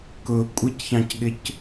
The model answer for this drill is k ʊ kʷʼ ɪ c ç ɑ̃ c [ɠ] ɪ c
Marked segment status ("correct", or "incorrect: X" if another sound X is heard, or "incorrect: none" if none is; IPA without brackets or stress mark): correct